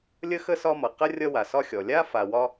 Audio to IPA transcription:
lʲ ə˥ x ə˥ s ɒ˦ m ʌ˩ q ə˥ rʲ ʌ˦ w a˩ s ɒ˦ xʲ ɔ˩ lʲ a˥ f a˨ w ɒ˦

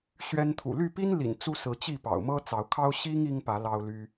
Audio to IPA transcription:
ɕ ɥ ɛ˦ n t̪ʰ ṵ˨˩ l y˥˨ p i˦ n l ḭ˨˩ n t͡s u˦ s ɹ̩˨˦ t͡ɕ i˥˨ p ɑ̰˨˩ ʊ̯ m ɤ˦ t͡s ɑ˨˦ ʊ̯ kʰ ɑ˦ ʊ̯ ɕ i˦ ŋ i˦ ŋ p ä˨˦ l ɑ˦ ʊ̯ l y˦

